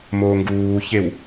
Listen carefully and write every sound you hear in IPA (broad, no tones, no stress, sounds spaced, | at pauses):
m oː ŋ ɡ uː ç e w